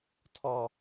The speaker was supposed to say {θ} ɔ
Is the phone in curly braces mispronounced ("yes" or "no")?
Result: yes